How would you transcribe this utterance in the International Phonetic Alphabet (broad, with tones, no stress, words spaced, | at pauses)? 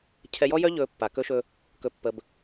cʰɛ˨jɔ˦jœ˦ʎɵː˨ pːa˨ kɵ˦ʃɵ˦ | kɵ˨pːə˨b